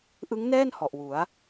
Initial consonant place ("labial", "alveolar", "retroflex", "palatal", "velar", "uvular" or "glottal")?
glottal